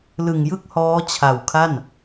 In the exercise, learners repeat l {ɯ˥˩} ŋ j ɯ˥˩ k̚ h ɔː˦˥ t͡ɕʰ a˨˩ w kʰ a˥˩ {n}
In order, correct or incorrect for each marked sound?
incorrect: ɯ˨˩, correct

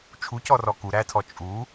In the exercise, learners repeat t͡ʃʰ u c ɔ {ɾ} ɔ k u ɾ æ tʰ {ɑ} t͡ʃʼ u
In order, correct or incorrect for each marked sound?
incorrect: r, incorrect: ɔ

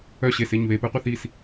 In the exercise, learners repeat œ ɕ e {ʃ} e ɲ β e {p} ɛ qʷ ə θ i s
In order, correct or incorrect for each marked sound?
incorrect: s, correct

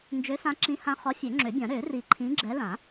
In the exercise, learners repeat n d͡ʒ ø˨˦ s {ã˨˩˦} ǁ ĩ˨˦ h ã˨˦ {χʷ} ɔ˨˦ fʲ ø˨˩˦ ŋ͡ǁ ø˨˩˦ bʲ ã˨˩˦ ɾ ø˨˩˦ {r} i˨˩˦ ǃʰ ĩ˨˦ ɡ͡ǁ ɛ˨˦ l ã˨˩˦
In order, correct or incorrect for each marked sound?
incorrect: ã˨˦, incorrect: χ, correct

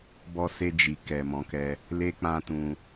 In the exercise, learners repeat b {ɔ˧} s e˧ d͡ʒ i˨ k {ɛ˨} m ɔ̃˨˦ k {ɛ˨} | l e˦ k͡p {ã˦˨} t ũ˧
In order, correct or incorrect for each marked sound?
correct, correct, incorrect: ɛ˧, incorrect: ã˦

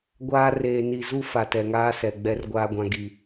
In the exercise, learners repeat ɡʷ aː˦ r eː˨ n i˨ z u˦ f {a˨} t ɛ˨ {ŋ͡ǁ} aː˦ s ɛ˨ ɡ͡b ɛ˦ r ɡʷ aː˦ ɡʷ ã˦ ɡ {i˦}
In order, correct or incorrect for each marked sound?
correct, incorrect: ŋ, correct

